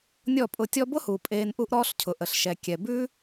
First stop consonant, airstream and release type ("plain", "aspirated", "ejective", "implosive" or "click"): ejective